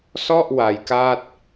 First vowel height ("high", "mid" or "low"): mid